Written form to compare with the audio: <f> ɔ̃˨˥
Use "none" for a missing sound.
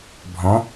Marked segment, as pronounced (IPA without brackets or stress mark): bʱ